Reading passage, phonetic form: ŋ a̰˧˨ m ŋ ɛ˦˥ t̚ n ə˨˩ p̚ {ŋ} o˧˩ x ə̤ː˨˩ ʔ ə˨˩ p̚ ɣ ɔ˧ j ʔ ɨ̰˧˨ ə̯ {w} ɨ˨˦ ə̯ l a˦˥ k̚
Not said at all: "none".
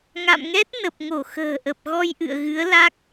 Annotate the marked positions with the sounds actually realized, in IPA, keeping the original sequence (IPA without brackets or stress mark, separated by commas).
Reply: ŋ, ɣ